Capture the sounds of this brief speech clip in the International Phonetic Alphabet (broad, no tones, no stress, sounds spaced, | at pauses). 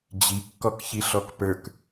d͡ʑ i kː ɔ k ç i ɬ ɔ k p ə˞ k